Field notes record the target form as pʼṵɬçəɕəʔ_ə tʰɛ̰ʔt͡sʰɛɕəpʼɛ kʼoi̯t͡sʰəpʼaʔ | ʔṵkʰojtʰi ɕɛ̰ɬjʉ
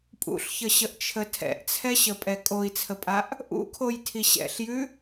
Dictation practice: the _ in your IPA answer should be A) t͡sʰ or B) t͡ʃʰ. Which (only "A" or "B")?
B